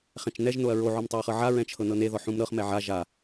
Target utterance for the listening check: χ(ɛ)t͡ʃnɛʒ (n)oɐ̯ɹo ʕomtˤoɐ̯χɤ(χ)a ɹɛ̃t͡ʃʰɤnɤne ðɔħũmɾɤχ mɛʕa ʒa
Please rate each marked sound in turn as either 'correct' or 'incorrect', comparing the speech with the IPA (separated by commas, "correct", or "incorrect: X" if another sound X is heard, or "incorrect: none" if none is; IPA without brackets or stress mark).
incorrect: ɛ̃, correct, incorrect: ʕ